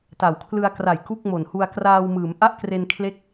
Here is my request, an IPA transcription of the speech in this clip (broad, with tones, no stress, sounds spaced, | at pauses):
t a˩˦ w kʰ l ɯ˧ a̯ k r a˨˩ j k u˥˩ k̚ m o˨˩ n h u˧ a̯ k r aː˧ w m ɯː˩˦ m ʔ a˥˩ ʔ k r e˧ n kʰ l e˦˥ k̚